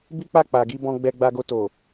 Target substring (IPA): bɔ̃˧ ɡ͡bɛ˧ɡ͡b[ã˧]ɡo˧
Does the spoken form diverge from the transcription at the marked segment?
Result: yes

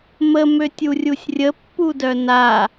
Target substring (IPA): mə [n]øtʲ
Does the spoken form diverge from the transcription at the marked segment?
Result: yes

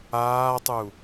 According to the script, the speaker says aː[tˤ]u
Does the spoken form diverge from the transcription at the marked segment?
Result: no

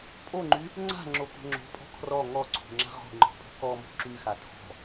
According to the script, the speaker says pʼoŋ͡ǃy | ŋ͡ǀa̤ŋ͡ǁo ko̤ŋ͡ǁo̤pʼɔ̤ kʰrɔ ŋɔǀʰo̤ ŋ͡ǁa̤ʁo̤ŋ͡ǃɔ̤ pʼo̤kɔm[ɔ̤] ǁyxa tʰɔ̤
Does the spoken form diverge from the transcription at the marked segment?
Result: yes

